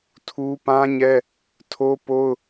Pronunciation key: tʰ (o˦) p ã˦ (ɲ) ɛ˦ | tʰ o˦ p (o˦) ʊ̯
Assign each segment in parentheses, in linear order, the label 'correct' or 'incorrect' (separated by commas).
incorrect, correct, correct